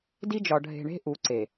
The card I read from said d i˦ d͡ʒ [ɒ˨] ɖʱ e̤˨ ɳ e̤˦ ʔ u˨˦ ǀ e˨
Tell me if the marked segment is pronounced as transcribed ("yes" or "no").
yes